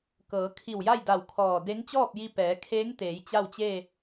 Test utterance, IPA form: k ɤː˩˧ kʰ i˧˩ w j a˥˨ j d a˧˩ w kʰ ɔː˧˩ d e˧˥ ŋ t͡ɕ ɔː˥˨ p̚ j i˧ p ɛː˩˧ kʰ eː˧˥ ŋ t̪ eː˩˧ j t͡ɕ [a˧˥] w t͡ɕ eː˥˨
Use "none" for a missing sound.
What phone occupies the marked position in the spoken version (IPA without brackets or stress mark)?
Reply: a˥˨